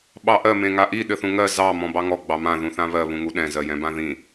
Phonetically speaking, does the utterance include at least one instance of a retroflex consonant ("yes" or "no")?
no